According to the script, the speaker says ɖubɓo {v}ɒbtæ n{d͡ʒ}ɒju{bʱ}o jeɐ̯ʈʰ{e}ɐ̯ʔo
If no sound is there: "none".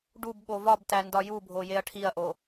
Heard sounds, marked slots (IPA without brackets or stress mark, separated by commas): v, d, bʱ, i